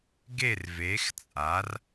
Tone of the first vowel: falling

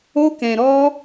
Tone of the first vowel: high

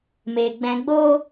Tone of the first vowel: low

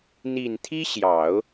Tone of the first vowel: low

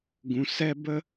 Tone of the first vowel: low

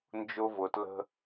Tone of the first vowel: high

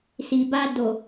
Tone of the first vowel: low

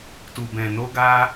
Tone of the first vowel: low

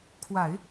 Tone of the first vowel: low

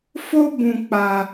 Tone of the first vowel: high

